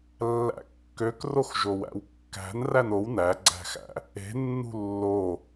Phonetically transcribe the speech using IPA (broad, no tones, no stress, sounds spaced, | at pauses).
lː æ̰ kː ø k r o x ʒ o w æ̰ w kː æ̤ n r æ n o w n æ ɡ͡ǀ æ̤ x æ̰ | e̤ nː ṳ lː o